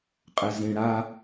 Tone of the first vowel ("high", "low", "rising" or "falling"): low